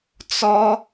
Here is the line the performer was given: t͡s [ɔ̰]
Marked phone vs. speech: incorrect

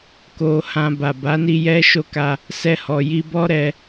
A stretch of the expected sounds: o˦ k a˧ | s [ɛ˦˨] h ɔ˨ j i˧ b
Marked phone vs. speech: incorrect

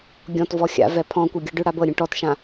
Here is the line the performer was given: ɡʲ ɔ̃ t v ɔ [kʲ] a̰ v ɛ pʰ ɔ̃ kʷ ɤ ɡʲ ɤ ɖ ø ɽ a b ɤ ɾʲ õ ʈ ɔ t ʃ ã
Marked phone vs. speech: incorrect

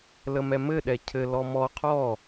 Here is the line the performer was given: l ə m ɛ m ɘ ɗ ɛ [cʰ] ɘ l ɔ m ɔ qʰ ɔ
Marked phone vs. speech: correct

